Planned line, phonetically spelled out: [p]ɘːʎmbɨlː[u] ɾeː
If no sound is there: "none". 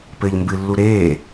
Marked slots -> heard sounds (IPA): p, u

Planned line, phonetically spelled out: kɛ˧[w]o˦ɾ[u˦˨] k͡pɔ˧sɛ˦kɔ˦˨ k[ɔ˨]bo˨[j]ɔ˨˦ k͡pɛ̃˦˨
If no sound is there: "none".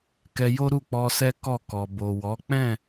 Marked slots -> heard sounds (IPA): j, u˦˨, ɔ˨, w

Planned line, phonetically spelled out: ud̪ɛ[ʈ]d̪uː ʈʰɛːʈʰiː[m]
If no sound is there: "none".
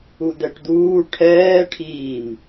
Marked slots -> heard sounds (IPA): ʈ, m

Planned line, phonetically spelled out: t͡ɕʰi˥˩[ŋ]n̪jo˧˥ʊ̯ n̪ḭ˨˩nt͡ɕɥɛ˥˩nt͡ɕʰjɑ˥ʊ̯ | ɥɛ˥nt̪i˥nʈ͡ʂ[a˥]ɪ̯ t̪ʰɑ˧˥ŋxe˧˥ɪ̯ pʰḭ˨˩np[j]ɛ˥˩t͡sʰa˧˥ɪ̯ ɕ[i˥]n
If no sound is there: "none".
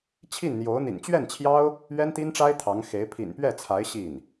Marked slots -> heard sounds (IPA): n, a˥, ɥ, i˥˩

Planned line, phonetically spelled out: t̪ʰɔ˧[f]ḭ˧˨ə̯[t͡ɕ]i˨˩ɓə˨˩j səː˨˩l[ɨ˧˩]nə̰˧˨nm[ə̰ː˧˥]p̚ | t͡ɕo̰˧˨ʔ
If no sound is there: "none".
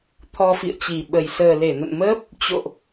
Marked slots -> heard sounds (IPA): f, t͡ɕ, e˧˩, əː˦˥

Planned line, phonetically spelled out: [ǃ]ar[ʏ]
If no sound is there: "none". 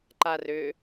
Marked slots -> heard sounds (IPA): ǃ, ʏ

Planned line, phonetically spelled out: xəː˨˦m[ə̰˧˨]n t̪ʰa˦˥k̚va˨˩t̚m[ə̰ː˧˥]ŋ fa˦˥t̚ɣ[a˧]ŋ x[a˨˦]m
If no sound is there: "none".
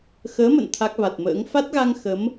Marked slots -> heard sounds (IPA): ə̰˧˨, ə̰ː˧˥, a˧, ə˨˦

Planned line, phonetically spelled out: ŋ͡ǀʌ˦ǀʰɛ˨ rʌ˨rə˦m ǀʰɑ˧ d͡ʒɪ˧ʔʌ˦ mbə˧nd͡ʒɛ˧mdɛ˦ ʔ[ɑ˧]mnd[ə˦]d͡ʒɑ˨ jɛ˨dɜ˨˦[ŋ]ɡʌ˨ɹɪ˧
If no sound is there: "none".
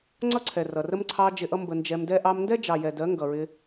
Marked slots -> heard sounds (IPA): ɑ˧, ɛ˦, ŋ

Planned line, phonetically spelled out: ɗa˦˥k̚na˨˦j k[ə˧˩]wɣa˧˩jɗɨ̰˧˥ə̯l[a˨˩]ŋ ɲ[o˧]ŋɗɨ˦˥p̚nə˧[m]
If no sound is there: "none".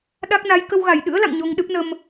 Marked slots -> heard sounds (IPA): ə˧, a̰˧˨, o˧, m

